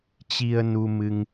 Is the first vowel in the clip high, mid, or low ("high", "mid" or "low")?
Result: high